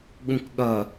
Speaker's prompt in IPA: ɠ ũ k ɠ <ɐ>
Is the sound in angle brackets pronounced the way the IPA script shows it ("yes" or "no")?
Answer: yes